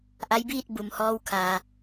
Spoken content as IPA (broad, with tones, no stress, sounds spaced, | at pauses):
ʔ a˧˥ j b iː˥˨ t̚ b u˩ m h ɔː˧ w kʰ aː˩